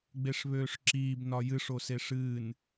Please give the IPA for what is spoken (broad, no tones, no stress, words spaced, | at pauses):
ɡ͡beʂβøːʂǁiːb nɒjɨʂ oseʂɨːn